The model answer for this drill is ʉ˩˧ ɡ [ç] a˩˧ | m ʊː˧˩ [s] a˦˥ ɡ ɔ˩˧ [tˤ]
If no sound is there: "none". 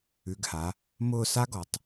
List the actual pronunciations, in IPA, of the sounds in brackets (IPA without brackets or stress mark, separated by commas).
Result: h, s, tˤ